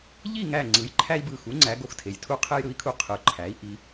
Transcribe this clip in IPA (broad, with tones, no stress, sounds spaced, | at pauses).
ʎ i˥˨ ŋ æ˧˩ ŋ͡ǀ ɯ˩˧ j ǃʰ æ˦ i̯ b ɯ˧˩ x u˩˥ ŋ͡ǀ æ˩˧ ɡ o˧˩ x tʰ e˩˧ j tʰ u˦ qʰ e˦ j ɾ ɯ˩˥ i̯ kʰ u˧˩ qʰ ɯ˩˧ ǃʰ æ˩˥ i̯ ʔ i˩˧